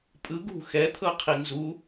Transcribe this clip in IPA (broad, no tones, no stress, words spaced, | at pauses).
pʼɯ ɡṳ xɛt̪ʰɤqʰi nzu